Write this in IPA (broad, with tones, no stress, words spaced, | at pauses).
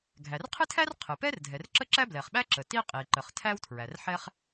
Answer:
ɡʱæ˩rqʰɨ˥tʰæ˥r qʰɨ˩pɛ˥r dʱɛ˩rǁə˥ǁæ˥ blɛ˩χɓæ˥ ǁə˩ti˥ qʼi˩ ǃə˩χtʰæ˥wtʰɹæ˩rħɛ˥χ